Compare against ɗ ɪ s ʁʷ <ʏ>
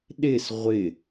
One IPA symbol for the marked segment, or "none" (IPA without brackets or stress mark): ɪ